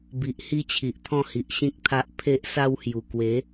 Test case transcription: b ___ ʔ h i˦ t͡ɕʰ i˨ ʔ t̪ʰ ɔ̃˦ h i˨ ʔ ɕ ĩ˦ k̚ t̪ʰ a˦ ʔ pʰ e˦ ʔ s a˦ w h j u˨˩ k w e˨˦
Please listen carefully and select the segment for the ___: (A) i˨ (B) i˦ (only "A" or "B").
A